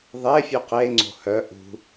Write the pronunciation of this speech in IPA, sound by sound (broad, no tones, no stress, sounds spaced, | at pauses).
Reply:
ðˤ e fʲ ʉ q e ŋ͡ǀ o̤ h œ ʔ ṳ